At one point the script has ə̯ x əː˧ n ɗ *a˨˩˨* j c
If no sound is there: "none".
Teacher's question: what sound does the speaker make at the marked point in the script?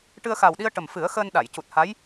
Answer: a˨˩˨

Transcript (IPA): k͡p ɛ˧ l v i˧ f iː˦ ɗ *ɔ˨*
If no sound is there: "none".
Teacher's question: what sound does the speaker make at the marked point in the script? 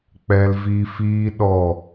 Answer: ɔ˦˨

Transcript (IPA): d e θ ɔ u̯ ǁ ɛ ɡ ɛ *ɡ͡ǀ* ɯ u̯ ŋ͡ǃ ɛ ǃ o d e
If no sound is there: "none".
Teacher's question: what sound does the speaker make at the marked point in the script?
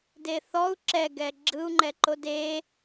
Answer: ɡ͡ǁ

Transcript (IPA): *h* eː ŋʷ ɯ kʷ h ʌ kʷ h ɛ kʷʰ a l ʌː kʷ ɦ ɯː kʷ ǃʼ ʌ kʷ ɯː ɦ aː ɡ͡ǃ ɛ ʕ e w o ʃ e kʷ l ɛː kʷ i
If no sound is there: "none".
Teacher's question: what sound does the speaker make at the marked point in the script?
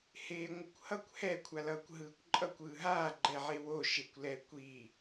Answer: h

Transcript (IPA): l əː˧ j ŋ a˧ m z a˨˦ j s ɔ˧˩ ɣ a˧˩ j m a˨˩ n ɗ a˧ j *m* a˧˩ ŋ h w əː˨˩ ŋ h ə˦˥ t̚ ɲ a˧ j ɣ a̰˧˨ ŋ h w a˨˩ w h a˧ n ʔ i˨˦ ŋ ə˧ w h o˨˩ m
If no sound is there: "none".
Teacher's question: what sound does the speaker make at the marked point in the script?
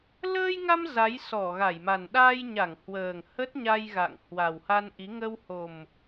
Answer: ɲ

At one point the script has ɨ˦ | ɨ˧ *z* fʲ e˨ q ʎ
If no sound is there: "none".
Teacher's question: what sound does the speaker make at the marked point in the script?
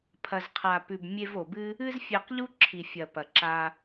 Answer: z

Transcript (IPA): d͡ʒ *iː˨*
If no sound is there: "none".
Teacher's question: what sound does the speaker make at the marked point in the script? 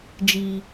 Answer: iː˨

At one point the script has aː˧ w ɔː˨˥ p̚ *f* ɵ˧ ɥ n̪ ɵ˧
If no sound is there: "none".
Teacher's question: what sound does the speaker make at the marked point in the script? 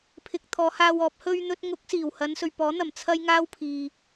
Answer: h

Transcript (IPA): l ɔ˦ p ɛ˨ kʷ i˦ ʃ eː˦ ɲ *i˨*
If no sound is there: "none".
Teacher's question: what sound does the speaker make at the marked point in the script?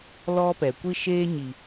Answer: i˨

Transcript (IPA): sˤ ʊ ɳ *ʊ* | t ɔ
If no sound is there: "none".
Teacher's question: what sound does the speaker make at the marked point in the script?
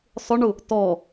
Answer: ʊ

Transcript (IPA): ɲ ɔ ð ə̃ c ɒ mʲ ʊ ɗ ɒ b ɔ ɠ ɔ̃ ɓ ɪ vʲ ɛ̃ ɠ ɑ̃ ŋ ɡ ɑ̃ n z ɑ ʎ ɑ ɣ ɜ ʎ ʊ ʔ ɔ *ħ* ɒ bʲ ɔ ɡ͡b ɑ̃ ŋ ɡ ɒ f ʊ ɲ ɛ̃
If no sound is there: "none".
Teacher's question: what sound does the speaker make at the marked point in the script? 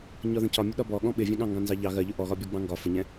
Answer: ɣ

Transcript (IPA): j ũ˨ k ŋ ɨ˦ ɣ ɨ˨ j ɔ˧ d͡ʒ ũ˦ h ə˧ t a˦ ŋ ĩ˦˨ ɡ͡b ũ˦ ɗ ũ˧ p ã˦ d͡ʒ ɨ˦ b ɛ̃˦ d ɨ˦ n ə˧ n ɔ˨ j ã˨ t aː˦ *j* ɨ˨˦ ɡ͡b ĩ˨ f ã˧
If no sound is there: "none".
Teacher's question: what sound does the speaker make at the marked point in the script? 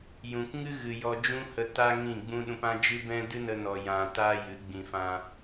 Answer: j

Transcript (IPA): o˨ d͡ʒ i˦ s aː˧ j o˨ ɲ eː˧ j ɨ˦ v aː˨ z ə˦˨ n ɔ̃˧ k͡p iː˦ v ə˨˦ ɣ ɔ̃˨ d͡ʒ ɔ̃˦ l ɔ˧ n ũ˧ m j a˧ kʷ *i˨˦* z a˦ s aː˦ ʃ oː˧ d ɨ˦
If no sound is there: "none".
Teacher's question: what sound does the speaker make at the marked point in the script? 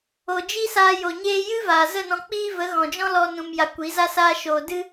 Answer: i˨˦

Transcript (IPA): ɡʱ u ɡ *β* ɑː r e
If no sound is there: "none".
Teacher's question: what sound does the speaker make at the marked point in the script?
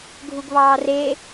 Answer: β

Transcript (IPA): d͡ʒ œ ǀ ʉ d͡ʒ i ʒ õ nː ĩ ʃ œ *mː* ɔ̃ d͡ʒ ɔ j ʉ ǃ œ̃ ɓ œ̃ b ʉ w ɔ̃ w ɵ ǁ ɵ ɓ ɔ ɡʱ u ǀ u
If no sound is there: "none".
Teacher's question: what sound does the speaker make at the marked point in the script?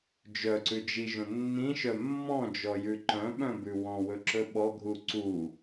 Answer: mː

